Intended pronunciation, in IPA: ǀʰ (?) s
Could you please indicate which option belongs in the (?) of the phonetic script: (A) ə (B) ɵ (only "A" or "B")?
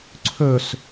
B